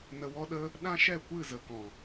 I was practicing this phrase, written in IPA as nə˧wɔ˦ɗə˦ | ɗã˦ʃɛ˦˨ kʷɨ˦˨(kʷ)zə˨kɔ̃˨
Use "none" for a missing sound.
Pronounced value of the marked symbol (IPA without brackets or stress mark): none